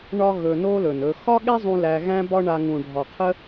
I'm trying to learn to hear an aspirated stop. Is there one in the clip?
yes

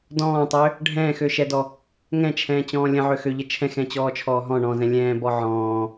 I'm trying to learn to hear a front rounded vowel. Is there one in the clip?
yes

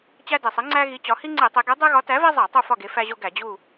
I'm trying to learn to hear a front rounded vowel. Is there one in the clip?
no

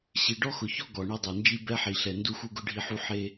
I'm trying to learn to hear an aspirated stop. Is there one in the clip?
no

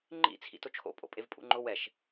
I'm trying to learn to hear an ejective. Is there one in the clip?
yes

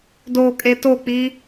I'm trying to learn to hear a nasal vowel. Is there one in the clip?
no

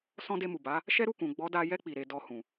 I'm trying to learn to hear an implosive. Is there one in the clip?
no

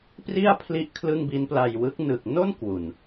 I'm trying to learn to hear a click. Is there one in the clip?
no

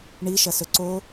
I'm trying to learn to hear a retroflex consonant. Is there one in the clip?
yes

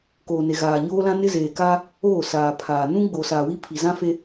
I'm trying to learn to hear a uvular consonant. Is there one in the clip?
no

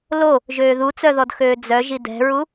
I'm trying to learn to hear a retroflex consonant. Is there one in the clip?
no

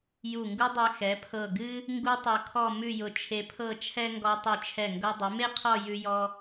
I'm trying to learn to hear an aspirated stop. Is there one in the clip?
yes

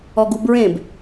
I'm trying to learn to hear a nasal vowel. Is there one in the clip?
yes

